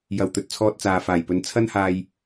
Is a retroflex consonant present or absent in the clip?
absent